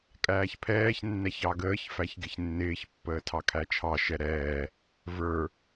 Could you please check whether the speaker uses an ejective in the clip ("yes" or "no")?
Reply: yes